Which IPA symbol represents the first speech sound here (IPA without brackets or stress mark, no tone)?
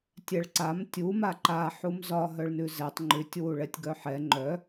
tʲ